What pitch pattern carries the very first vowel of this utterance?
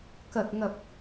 low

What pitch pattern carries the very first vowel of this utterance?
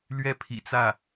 falling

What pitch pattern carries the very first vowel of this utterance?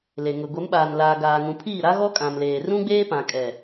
low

